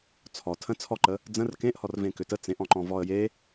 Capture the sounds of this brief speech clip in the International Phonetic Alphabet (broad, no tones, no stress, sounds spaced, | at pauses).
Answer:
t͡sʰ ɔ tʰ ə̃ t͡sʰ ɔ ǃ ə | d͡z ə̃ r k ẽ ʔ h ɔ r v ẽ k ʏ t ə t͡s ẽ ʔ ɔ̃ ǃ ɔ̃ v ɔ ə̯ j e